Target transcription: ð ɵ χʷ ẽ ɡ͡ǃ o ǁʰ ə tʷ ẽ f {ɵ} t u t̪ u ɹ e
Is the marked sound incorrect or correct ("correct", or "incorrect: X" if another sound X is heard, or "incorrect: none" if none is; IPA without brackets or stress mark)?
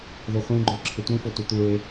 incorrect: o